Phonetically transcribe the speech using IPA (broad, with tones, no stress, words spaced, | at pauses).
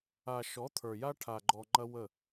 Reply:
a˨ ʃɔ˨˦t̪ʰə˞˨ja˦ ʈʰa˨ɡ͡ǃɔ˨ ŋ͡ǃɐ˦wə˦˨